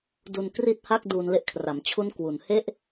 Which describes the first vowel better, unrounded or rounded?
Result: rounded